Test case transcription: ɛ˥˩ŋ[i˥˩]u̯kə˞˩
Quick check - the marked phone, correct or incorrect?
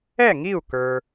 correct